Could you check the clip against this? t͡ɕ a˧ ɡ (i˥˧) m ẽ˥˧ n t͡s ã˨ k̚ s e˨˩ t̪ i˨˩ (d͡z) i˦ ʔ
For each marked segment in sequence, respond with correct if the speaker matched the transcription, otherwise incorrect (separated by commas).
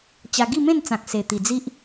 correct, correct